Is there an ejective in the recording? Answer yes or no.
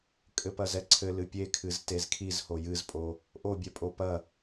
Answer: yes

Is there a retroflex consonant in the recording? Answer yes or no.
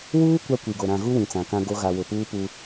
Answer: no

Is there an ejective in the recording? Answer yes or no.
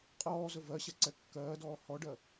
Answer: yes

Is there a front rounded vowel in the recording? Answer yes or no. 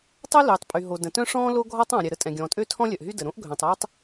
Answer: yes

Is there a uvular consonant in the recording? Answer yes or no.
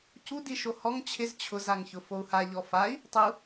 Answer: no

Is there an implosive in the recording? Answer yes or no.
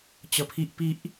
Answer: no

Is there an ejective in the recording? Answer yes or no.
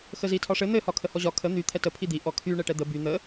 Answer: no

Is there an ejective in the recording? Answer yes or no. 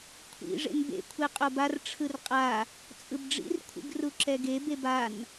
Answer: yes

